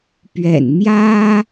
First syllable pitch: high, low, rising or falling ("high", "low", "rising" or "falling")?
low